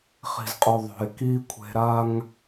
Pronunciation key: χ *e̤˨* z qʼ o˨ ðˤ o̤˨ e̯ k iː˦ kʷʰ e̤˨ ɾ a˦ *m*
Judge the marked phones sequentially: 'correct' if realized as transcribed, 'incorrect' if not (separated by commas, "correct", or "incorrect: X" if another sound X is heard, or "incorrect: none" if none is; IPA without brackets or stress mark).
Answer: incorrect: i̤˨, incorrect: ŋ